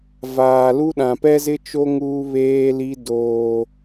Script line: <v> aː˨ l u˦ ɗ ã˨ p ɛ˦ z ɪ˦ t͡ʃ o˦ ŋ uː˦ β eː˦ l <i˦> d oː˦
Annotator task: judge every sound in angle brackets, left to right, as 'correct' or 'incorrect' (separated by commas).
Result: correct, correct